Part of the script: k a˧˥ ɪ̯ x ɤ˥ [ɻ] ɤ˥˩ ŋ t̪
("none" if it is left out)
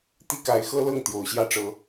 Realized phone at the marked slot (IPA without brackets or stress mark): l